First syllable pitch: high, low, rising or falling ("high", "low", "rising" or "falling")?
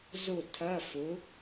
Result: falling